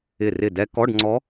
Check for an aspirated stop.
absent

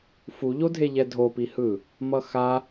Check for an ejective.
absent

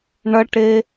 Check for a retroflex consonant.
present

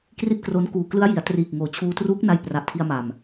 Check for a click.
absent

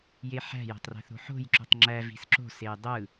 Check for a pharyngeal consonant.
present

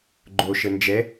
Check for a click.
present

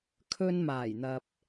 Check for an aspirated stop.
present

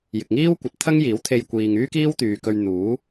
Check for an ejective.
absent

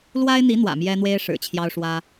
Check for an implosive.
absent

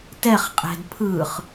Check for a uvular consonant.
present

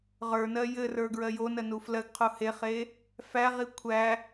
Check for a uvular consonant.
present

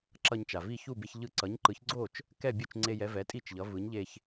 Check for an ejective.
present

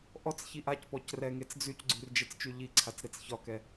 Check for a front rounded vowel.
present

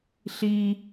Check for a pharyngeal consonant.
absent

